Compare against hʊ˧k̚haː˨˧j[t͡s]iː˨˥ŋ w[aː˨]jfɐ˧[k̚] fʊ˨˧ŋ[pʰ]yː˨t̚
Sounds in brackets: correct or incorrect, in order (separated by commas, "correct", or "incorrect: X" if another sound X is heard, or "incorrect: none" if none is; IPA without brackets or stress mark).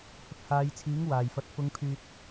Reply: incorrect: t͡sʰ, correct, incorrect: t̚, correct